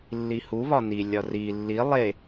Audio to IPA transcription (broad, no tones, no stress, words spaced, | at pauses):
lːihuβɒ nilʲɒ ri lːi lˠe